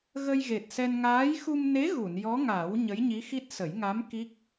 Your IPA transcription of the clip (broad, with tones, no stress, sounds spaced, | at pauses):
ɣ ə˧ j ɣ e˨˩ t̚ s ɛ˧ n ŋ aː˧˥ j x u˧ m n e˧˥ ɣ u˨˩˨ n j ɔ˧˥ ŋ a˨˩˦ w ɲ ə˧˥ j ɲ i˧˥ x i˦˥ t̚ s ə˨˩˦ j ŋ a˧˥ m k i˦˥ k̚